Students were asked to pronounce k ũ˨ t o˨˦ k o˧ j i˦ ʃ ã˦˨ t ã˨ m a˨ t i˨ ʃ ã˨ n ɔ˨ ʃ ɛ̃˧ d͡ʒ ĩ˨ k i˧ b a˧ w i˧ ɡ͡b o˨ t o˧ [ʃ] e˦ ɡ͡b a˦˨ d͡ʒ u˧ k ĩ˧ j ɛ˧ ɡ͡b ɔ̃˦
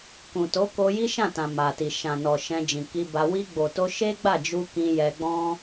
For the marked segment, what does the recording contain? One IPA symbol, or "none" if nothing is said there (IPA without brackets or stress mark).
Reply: ʃ